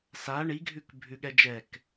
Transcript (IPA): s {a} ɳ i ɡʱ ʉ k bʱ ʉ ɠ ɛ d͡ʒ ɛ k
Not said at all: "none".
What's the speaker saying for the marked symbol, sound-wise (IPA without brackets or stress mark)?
a